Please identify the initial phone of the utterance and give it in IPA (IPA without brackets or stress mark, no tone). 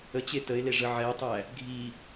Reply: ə